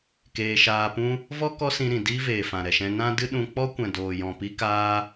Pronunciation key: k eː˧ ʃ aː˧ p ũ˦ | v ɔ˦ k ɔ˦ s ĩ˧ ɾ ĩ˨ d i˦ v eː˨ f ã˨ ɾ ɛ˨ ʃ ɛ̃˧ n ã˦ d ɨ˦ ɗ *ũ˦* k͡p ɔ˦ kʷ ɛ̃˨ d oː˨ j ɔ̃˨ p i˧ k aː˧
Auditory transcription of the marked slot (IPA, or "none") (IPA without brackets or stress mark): ũ˧